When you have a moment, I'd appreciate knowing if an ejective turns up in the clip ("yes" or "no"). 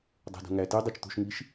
no